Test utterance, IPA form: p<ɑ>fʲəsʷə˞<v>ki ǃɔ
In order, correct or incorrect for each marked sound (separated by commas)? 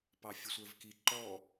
correct, correct